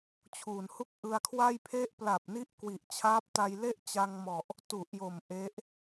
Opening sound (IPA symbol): t͡ɕʰ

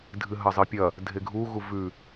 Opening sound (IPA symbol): dʱ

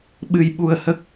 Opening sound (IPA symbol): ɓ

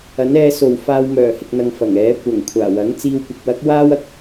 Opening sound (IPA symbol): ɐ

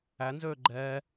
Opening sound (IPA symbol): æ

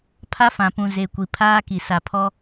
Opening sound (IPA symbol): pʰ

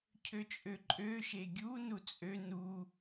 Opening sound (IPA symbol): cʰ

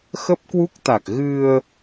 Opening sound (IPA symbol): x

